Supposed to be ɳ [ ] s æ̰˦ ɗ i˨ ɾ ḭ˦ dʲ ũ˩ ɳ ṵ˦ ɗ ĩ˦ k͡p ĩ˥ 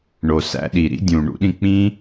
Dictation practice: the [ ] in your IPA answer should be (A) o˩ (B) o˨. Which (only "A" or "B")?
B